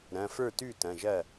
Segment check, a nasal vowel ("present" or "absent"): present